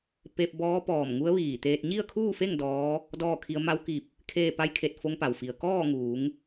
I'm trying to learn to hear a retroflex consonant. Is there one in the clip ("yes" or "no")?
no